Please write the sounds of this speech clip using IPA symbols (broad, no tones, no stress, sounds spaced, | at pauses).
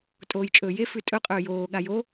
tʼ oː j t͡ʃʼ ɵː j e f ʉ tʼ ɵ qʼ ɵː j oː ɠ a j o